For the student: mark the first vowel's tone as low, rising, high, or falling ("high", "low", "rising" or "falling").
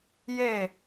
falling